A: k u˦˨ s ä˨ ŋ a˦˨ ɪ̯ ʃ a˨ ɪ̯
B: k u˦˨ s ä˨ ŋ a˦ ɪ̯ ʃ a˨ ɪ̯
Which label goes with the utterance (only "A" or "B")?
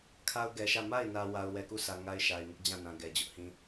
B